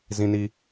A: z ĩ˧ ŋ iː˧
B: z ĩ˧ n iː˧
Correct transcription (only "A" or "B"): B